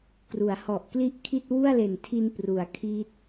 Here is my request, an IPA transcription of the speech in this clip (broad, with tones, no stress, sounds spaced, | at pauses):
k r u˩˦ a̯ h ɔ˨˩ ʔ k l i˥˩ ʔ kʰ i˥˩ t̚ w u˥˩ a̯ l e˨˩ n tʰ i˧ n p r u˩˦ a̯ kʰ iː˦˥ t̚